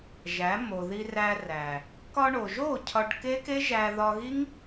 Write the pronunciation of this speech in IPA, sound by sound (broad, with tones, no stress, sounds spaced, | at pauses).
ʒ æ˨˦ m o˨ ð i˧ r æ˧ r æ˨ | k ɒ˧ ɳ o˨ ʒ o˦˨ cʰ ɒ˧ ɖ k e˦ k e˦ ʒ æ˧ ð ɒ˧ ɣ i˦ ŋ